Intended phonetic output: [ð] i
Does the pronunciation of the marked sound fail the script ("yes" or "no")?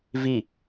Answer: yes